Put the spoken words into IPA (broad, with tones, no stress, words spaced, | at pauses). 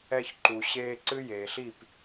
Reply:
ɛ˧çǃu˨ɕeː˧ ǀɨ˦jeː˨ɬi˦˨p